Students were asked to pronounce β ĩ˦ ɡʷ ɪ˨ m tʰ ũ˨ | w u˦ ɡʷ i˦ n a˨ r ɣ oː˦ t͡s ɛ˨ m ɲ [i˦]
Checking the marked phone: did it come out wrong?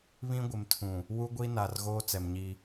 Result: no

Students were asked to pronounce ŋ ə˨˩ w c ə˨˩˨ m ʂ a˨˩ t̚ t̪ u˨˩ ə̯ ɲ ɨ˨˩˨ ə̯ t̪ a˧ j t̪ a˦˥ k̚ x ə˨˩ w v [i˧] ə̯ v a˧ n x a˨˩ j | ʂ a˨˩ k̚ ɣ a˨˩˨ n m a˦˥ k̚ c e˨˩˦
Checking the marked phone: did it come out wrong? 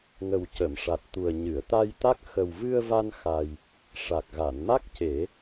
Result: yes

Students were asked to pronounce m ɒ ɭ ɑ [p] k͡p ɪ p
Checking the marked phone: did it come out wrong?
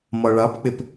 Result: no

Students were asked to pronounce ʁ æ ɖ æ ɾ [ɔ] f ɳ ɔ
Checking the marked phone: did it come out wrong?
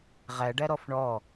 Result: no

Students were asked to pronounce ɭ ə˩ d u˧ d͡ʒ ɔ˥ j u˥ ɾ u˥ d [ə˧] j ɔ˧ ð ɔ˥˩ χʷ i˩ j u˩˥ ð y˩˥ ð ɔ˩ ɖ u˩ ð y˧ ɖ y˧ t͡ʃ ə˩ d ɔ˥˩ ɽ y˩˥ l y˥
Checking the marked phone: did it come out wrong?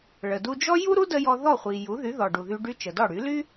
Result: no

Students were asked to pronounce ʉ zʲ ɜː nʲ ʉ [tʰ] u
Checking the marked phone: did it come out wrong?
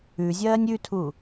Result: no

